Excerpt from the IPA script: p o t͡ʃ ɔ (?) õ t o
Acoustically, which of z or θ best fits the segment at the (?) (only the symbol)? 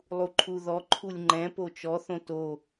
θ